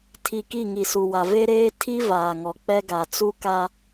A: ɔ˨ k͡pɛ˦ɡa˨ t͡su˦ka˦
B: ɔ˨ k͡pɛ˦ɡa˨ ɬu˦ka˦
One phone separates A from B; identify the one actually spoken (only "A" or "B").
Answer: A